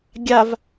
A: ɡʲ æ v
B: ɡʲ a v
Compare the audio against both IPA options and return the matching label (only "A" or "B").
B